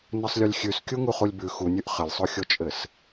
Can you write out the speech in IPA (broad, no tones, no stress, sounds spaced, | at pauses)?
n ɘ sˤ lʲ u lʲ xʲ ʉ s kʲ u ŋ u χ u lʲ b ʉ x u nʲ ʉ ʔ χ ɘ lʲ sˤ o xʲ o t͡ʃʼ ɘ s